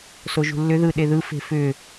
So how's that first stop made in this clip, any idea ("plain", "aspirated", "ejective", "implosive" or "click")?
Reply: implosive